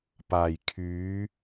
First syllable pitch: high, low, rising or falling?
low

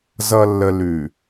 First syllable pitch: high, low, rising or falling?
low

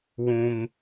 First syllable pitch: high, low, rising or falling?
high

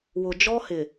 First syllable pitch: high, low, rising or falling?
low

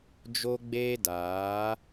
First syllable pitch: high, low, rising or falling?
high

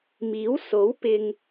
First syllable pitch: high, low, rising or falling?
rising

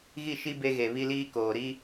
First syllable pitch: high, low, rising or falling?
falling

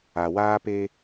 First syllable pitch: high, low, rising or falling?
low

